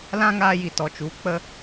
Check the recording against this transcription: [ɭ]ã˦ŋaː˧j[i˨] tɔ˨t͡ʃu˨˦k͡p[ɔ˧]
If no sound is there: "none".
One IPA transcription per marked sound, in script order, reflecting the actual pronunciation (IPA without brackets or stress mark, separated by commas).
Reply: l, i˨, ə˧